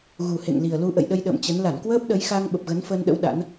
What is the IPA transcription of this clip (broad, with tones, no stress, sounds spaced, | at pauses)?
ɣ u˨˩ h ḛ˧˨ ŋ l i˨˩ ə̯ l u˧ ʔ ə̰˧˨ j ɗ ə˧ j ɗ ə̰ː˧˨ m t͡ɕ ə˨˦ n l a˧˩ n k w əː˦˥ p̚ ɗ ə˨˦ j x a˧ ŋ ɓ ə˨˩ p̚ ɣ ə˨˦ n f əː˧ n ɗ ə̰˧˥ w ɗ a̰˧˥ n